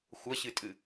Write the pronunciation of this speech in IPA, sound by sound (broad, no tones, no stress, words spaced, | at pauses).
xʷɐɕɨtʼɨ